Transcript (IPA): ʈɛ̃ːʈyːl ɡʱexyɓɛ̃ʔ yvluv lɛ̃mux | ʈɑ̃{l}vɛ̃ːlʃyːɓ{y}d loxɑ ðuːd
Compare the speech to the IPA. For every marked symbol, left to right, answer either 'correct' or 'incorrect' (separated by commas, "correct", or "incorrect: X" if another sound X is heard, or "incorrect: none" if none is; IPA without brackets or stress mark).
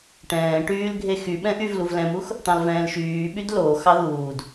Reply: correct, correct